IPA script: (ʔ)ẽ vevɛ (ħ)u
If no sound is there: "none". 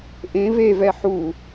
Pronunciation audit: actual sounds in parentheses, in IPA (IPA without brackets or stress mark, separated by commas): ʔ, ħ